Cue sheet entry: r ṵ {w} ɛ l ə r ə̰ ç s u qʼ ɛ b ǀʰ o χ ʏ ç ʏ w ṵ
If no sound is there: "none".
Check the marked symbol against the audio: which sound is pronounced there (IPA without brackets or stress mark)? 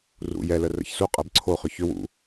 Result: j